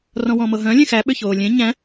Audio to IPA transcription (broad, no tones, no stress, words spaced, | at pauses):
rɔ̃wɔ̃mɤɦœ̃ lʲẽxæ ɓʏçoːlʲẽ ɲæ̃